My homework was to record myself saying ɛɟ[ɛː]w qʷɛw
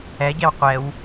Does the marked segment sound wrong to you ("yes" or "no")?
yes